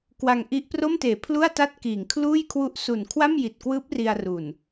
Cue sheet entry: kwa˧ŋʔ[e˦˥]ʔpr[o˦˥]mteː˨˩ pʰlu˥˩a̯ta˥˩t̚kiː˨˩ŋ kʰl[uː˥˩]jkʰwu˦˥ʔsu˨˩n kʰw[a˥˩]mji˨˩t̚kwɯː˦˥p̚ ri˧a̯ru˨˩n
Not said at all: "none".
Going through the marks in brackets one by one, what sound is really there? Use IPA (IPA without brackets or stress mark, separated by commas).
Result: i˦˥, o˥˩, uː˥˩, a˥˩